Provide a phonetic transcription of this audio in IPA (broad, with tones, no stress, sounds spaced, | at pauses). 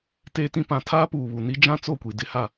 t eː˦ t ĩ˦ p ã˨˦ tʰ aː˦ p uː˨ β u˨ n i˦ d͡ʒ ã˦ t͡s o˦˨ kʷ i˨ d ɪ˦ h a˦˨